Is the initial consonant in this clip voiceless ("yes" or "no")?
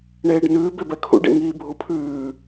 no